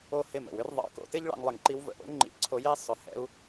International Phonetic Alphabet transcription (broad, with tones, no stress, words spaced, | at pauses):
o˦˨hɪ˦˨mə̰˨wʏ˦r ðˤɑ̰˨˦ko̰˧tɪ˦ʎ ɭɑ̰˧ŋlˠɪ˨ŋǃi˧w və̰˨ʔo̰˦ ŋ͡ǃḭ˧ǀʰo˧je˦ sˤʏ˨ hɛ̰˧u̯